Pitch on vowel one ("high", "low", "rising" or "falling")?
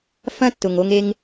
high